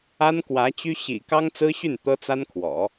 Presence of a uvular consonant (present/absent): absent